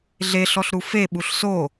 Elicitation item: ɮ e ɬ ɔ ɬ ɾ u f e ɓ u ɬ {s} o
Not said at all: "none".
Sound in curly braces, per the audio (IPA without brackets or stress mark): s